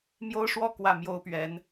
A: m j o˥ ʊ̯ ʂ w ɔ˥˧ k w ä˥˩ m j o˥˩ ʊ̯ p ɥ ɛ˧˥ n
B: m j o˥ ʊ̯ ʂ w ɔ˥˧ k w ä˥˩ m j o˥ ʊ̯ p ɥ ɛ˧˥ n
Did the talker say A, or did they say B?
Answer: B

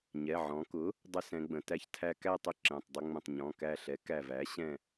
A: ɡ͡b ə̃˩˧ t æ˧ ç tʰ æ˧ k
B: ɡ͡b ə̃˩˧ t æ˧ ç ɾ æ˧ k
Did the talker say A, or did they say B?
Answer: A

